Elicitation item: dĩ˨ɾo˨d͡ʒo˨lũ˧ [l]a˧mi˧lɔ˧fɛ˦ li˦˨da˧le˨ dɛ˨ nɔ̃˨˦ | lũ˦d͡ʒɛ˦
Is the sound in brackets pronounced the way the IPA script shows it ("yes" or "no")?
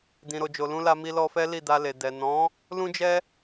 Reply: yes